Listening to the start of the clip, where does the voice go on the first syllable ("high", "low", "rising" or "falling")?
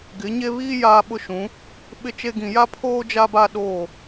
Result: rising